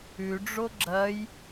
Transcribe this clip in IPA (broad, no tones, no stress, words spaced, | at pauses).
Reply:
ʉɖ͡ʐo ɡ͡ǁɐj